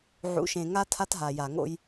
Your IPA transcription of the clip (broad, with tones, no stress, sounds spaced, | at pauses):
ʕ ṵ˨˦ ʃ ẽ˨ ŋ a˦ tʰ a˦ t ɦ a˨ j a˨ ŋ o̰˦ j